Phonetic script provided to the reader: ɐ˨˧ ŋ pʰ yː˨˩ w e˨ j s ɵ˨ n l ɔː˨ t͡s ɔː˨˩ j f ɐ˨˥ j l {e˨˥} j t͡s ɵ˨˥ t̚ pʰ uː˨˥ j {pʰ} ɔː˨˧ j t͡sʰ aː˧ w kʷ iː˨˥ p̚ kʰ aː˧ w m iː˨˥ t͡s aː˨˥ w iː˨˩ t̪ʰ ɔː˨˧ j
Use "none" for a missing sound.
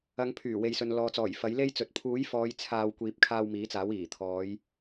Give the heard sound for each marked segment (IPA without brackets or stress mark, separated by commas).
e˥, f